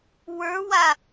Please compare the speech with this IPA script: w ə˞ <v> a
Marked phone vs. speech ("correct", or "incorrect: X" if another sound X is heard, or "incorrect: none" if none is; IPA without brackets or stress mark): incorrect: w